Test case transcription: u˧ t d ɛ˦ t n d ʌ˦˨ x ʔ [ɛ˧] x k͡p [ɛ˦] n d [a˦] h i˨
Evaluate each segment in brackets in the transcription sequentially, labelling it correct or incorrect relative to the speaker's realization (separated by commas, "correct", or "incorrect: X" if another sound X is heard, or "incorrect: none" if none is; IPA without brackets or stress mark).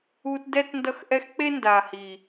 correct, incorrect: e˦, incorrect: a˨